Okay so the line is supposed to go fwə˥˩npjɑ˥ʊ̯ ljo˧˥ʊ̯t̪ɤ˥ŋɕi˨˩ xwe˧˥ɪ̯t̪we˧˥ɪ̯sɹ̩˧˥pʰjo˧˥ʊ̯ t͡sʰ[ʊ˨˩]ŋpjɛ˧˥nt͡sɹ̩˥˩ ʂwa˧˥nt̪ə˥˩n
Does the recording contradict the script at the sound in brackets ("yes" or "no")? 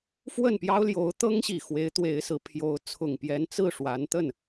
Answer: no